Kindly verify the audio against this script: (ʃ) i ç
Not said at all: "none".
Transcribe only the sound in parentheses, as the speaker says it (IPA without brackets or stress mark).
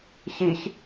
ç